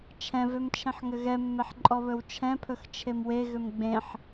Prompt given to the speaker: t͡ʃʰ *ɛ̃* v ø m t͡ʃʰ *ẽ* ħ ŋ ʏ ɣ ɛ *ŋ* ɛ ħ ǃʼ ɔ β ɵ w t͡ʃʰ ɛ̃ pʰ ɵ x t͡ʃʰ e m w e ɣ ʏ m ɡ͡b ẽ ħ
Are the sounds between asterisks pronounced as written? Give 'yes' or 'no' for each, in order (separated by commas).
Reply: yes, yes, no